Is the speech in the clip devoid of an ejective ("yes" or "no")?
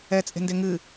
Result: no